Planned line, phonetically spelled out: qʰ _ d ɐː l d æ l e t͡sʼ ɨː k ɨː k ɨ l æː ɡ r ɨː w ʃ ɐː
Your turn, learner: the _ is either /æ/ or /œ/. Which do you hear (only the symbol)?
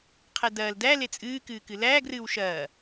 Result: æ